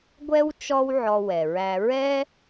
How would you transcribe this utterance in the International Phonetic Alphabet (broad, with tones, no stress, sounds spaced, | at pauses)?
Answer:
ɡʷ ɛ˥ w t͡ʃ ɔ˥ w ʕ ɔ˧ w ɛ˩ ɹ æ˧ ɹ ɛ˥